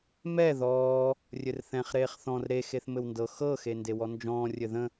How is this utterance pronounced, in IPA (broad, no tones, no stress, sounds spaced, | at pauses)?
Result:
m ɛ ð ɔː | rʲ ɘ r θ ɛ̃ χ ɾ eː χ θ ɔ̃ r ɾ e x e θ m ɘ w n d ɤ x ɤ x e n d e w ɔ n d͡ʒ ɔ̃ː rʲ ɘ ð ə̃